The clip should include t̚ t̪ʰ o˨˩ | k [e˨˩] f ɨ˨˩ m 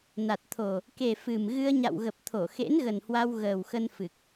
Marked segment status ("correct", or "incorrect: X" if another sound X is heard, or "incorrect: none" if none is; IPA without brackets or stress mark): correct